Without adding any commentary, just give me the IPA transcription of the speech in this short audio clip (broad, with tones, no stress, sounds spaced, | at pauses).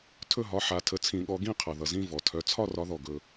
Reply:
tʰ ɵ˥˧ ɦ ɒ˨˦ ħ a˨˩˦ tʰ ə˨˦ t͡sʰ ĩ˨˩˦ ɠ ɔ˨˦ ɡ ĩ˥˧ qʰ ʌ˩ ð ʌ˩ z ĩ˥˧ v ɔ˩ tʰ œ˨˦ t͡sʰ ɒ˥˧ r ɒ˨˦ ð ɔ˩ ɡ ɵ˩